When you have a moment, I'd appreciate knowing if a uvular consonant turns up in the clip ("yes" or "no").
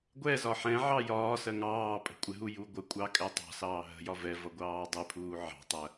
no